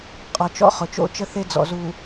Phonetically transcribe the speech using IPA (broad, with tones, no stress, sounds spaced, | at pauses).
qʼ ɔ˨ t͡ʃ ɔ̰˦ χ ʊ˨ t͡ʃ o̰˦ t͡ʃ ə˦ θ e˦ d͡z ɔ̰˨ z u˨